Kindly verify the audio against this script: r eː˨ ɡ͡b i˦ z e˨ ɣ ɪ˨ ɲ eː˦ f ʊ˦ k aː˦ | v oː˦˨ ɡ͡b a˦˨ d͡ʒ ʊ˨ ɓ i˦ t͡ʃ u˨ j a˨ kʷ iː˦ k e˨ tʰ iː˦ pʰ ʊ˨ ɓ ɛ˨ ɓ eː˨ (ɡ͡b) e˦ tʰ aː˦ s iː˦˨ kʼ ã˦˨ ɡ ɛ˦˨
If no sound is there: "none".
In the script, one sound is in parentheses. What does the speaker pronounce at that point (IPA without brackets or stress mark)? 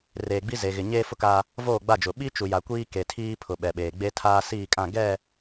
ɡ͡b